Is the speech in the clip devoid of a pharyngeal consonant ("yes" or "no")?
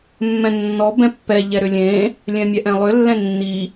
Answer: yes